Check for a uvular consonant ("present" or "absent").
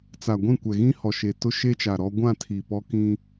absent